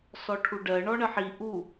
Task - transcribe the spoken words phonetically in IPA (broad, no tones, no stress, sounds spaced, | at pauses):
s ɔ ʈʰ u ɖ ɜ ɳ ɔ ɳ ə ħ i ʔ u